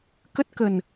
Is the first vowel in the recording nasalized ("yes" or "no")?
no